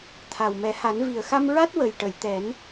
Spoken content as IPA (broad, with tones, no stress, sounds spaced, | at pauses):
t̪ʰ a˨˩ w m ɛ˨˩˦ h a˨˩˦ n v i˨˩ ə̯ x a˧ m ɹ a˦˥ t̚ w ə˨˩ j ʈ ə˨˩˨ j t̪ ɛ˨˩˦ n